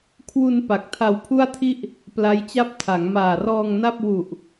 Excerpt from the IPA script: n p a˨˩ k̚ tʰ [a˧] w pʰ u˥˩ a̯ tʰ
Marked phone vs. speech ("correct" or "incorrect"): correct